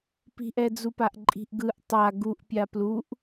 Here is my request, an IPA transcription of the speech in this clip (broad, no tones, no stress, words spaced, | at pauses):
pi̤ʔɛd͡zupaʔ ǃʼi̤ʔɡɯʔ tˤa ɡuʔpʲa pluʔ